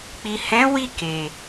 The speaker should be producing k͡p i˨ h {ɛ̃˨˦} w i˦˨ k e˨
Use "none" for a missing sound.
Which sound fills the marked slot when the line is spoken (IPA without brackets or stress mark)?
ɛ̃˨˦